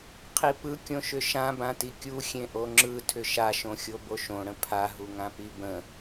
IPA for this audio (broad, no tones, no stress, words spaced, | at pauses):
qʰipɯkʲõʃʏ ʃã bãtikʲu xʲẽʔoŋ͡ǁɯ tʰʏʃaʃõxʲo boʃõɽə̃ pʰaɦuŋãpi bə̃